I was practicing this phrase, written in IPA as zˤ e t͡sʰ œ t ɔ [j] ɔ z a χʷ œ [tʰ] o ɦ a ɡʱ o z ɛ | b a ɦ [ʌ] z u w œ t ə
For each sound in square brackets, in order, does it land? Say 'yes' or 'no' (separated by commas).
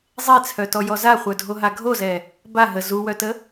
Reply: yes, no, no